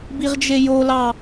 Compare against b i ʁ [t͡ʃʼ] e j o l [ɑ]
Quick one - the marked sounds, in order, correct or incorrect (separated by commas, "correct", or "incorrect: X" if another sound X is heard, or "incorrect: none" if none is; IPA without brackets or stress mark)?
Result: incorrect: d͡ʒ, correct